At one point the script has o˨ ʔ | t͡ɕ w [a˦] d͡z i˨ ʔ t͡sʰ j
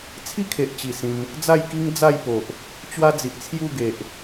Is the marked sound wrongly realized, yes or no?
no